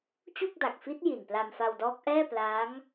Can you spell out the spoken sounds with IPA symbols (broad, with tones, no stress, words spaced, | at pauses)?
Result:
t͡ɕu˥˩k̚da˨˩k̚fi˦˥t̚ ji˨˩npla˧mfa˧wdɔː˦˥k̚ ʔɛː˥˩ plaː˦˥ŋ